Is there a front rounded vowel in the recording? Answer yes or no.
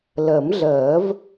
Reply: no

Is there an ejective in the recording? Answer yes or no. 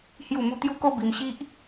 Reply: no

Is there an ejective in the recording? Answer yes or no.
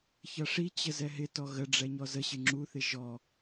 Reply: no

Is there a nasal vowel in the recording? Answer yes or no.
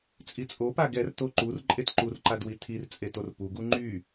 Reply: no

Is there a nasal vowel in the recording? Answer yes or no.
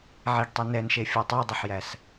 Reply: no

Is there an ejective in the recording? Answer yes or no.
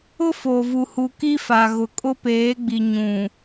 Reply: yes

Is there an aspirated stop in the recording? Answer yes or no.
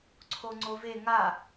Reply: yes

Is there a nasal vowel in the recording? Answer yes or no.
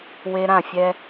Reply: yes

